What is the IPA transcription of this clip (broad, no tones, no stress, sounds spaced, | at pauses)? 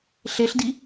ɬ e ɬ d i